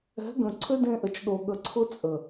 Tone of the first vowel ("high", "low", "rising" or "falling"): rising